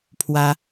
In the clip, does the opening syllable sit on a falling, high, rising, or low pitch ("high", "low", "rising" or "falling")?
high